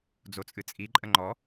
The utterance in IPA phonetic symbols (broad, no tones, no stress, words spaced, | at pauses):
d͡zot͡sʼɨt͡sʼiǃʼə ŋ͡ǃɔ